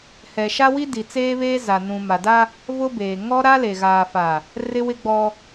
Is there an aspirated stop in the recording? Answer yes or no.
no